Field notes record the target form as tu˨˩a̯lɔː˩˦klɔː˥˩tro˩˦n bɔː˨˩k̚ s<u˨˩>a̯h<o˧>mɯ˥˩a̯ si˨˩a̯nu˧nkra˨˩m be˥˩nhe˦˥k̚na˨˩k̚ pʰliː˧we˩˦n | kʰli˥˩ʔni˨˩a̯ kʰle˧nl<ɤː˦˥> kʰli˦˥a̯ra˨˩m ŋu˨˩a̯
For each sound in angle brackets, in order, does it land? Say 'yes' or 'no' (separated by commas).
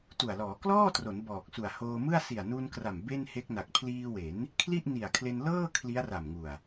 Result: yes, no, no